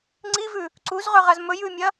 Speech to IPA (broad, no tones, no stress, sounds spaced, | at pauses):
ŋ͡ǀ i v ʉ | ǀ u z ʁ ɵ ʁ ɐ z m ɵ j ʉ mʲ ɐ